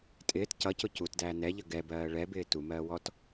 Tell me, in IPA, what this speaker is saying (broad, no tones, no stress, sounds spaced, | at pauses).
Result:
tʼ ɪː t c ʌ c ʊ c u t d æː n ɛ ʎ ə ɡ ɛ b ɜː ɭ ɛ b ɪː t u m ɜː w ɔ t